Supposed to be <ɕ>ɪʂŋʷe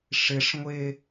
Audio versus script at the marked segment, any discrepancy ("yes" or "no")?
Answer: yes